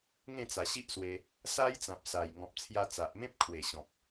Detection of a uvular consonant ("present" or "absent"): absent